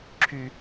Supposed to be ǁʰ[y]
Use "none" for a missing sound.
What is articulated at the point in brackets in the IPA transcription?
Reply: y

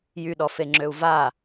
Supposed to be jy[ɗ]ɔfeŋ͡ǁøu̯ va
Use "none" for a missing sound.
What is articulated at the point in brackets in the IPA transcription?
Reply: ɗ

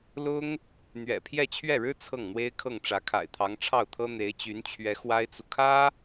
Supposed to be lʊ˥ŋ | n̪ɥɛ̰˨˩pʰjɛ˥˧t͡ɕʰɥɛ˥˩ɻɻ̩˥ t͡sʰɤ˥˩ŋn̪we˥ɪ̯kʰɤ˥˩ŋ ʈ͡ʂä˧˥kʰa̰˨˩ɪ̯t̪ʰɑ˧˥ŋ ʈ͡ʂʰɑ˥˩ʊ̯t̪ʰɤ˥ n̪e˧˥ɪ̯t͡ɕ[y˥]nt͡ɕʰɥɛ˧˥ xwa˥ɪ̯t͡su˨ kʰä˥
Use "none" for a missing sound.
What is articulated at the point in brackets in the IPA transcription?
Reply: y˧˥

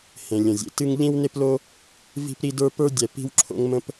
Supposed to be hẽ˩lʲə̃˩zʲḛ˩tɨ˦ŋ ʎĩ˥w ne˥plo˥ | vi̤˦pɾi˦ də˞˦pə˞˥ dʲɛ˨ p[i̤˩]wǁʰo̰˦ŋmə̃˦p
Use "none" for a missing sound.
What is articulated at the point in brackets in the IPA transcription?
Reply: i̤˦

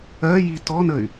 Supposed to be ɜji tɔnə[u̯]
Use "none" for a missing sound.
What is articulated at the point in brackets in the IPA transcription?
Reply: y̯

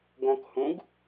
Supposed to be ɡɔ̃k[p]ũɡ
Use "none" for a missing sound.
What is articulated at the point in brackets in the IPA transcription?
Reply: h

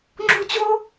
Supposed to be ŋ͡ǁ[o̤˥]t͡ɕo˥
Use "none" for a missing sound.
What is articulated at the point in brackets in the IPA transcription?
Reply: o̤˥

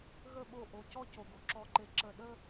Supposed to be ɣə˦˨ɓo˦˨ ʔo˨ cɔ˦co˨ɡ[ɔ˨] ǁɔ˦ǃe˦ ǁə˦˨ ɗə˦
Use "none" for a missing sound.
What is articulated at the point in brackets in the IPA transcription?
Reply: o˨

